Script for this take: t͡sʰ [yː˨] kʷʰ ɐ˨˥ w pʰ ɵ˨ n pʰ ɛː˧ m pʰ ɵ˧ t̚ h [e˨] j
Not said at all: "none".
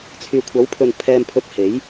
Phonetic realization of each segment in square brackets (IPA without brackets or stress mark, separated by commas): yː˨, e˨˥